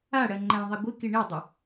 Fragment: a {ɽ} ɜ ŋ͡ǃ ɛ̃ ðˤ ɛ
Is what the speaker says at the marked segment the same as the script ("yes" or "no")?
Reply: yes